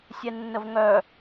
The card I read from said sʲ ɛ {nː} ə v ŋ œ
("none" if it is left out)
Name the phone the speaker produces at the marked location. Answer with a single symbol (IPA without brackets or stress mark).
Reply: nː